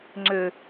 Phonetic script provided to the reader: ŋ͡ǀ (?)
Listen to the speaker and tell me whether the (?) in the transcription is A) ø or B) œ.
A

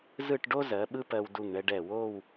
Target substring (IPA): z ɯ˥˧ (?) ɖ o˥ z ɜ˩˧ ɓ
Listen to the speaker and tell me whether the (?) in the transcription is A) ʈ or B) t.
A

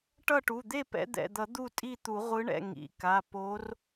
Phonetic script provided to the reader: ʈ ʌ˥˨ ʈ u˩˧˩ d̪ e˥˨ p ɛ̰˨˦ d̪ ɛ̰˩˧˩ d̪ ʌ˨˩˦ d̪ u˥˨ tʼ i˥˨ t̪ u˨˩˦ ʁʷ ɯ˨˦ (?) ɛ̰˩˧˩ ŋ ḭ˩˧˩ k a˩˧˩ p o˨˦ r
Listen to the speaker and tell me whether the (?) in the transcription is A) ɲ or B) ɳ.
B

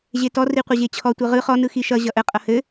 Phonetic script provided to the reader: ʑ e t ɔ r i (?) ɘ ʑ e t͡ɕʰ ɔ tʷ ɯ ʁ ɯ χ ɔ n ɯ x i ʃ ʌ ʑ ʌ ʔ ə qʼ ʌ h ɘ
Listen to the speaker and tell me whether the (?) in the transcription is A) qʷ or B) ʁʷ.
A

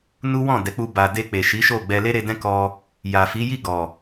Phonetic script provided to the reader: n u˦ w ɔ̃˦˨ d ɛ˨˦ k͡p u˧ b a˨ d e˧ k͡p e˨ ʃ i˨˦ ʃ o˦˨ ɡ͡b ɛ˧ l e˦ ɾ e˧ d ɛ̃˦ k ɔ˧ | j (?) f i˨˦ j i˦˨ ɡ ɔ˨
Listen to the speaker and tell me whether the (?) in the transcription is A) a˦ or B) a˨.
B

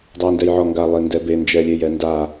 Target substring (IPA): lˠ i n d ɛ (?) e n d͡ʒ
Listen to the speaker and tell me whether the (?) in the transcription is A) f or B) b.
B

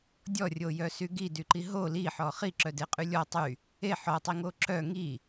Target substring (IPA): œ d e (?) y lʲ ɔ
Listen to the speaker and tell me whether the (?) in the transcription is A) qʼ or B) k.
A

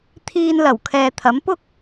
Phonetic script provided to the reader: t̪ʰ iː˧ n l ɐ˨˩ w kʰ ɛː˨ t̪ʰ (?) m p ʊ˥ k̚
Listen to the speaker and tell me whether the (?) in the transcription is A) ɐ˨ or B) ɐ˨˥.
B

